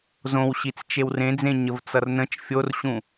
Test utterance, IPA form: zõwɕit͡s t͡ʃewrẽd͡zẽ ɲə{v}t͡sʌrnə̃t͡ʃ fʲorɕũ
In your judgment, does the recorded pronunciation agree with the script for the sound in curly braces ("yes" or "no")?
yes